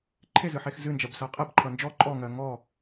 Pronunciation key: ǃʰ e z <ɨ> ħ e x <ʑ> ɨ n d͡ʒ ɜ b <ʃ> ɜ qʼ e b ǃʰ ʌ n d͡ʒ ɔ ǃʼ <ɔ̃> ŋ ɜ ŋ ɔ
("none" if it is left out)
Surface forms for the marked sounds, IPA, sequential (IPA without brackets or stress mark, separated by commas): ɨ, z, s, ɔ